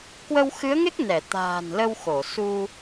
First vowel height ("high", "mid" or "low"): mid